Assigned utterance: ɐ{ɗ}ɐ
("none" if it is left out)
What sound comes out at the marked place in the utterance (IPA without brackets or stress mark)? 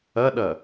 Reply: ɗ